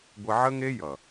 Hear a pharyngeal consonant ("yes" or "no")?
yes